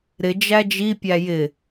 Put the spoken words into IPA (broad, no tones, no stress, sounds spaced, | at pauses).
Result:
ɾ ɪ d͡ʒ æ d͡ʒ i pʲ æ j ɪ